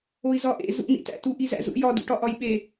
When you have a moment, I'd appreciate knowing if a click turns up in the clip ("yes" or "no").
no